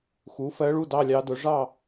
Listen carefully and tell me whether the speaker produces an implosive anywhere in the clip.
no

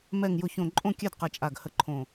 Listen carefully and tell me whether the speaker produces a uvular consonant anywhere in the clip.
yes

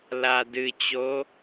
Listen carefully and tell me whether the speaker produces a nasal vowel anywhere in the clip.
no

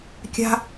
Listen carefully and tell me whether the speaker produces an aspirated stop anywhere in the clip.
no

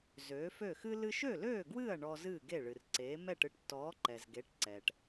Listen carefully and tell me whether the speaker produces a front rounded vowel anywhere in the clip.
yes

